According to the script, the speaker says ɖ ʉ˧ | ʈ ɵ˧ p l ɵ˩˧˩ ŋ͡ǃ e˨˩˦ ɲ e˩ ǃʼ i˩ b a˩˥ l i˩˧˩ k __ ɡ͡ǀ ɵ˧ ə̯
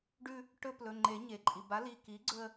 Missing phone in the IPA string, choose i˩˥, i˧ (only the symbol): i˩˥